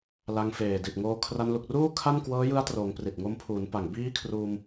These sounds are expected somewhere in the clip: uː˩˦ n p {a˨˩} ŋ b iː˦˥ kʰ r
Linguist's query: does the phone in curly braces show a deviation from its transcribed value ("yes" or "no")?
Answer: no